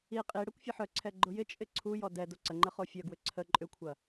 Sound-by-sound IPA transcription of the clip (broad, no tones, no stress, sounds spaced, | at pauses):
i qʼ i ɽ ɐ kʷ fʲ ɐ ħ œ ǀʰ ɛ ɡ͡ǃ ʊ j ɪ t͡ʃʼ ɪ ǀʰ u j ɔ d ɛ d o ǀ ə ŋ͡ǃ ə χ o fʲ œ ɡ w ʏ ǀʰ ə ǃʼ ʏ kʷʰ ɐ